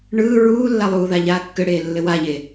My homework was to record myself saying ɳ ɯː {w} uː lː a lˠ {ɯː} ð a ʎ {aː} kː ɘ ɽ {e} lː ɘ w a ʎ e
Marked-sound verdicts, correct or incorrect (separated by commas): incorrect, incorrect, correct, incorrect